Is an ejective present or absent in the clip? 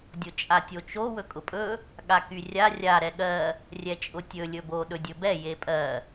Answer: present